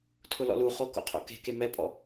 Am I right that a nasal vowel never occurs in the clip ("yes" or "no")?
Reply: yes